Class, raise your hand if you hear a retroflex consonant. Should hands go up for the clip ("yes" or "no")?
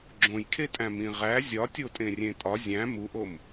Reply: no